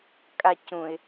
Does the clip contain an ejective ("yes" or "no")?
yes